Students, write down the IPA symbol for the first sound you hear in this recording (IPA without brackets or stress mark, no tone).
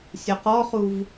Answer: sʲ